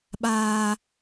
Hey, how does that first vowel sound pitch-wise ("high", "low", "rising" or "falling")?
low